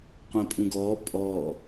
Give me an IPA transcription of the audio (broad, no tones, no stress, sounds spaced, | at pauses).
qʷ ɛ̃ pʼ ũ ɡ ɔː pʼ ɔː